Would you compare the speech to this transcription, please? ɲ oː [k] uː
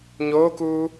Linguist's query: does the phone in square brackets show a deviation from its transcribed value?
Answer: no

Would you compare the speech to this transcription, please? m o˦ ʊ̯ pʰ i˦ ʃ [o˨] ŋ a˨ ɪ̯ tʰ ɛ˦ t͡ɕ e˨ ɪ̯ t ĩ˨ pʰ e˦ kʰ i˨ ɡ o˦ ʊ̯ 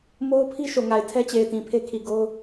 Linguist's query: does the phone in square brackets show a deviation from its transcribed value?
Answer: no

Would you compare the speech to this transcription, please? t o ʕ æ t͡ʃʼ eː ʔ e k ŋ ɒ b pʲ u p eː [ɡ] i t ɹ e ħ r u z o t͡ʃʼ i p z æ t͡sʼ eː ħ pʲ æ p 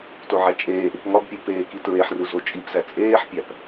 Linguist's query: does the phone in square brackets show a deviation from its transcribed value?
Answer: yes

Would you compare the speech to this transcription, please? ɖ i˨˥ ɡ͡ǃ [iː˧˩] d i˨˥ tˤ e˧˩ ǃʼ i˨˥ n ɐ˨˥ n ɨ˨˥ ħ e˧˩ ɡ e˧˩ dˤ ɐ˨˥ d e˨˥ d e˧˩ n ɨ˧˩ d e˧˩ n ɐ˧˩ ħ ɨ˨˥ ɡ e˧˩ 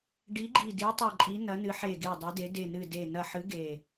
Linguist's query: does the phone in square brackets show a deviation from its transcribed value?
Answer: yes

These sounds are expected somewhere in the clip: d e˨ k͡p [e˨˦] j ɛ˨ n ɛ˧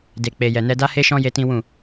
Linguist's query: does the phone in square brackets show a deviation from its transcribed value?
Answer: yes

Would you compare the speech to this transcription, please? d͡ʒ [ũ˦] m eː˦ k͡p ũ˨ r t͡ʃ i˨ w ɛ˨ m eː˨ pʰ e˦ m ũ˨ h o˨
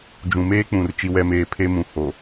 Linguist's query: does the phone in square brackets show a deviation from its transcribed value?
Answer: yes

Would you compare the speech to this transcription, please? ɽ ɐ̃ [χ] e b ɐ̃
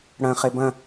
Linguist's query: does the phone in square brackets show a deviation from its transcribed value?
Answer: no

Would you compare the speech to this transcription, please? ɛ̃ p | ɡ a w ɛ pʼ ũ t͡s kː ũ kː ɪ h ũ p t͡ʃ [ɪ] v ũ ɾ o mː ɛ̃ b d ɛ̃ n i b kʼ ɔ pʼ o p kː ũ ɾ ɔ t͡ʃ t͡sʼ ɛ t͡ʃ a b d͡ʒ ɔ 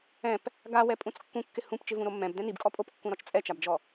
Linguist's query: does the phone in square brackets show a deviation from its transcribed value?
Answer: no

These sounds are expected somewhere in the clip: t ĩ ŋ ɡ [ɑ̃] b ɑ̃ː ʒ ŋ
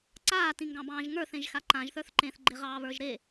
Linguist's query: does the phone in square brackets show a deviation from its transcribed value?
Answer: no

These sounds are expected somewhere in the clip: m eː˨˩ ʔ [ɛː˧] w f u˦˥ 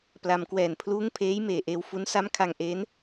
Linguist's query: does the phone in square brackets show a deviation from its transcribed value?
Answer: yes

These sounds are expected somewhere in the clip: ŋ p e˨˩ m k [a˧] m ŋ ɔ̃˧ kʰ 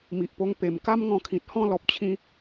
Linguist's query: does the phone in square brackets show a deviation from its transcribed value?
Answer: yes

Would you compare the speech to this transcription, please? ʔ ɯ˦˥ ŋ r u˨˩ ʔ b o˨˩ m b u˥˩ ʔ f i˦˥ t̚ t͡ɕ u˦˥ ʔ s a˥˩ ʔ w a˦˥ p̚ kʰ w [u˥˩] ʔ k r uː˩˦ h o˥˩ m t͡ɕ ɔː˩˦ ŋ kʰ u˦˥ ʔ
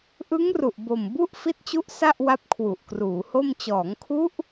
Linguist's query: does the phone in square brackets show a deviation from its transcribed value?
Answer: yes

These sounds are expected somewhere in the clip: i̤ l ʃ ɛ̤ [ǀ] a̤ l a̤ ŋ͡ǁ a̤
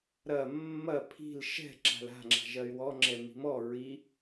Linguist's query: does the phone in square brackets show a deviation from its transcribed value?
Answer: yes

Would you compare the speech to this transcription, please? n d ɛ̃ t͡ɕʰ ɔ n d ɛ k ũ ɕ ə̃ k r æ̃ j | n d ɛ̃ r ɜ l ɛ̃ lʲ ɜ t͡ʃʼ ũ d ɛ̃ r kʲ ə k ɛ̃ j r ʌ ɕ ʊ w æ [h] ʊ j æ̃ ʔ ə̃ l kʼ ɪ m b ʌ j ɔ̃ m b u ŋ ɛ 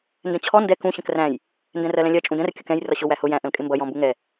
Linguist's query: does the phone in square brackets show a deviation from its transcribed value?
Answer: no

